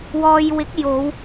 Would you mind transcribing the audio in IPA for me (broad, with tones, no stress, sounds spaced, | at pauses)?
w ɔː˧ j w ɪ˨˥ k̚ j o˨˧ w